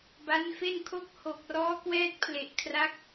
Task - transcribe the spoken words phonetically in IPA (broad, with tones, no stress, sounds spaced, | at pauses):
b a˦˥ n f e˥˩ n kʰ o˥˩ k̚ h o˨˩ k̚ r ɔː˦˥ k w ɛː˦˥ t̚ pʰ l e˨˩ ʔ kʰ r a˦˥ k̚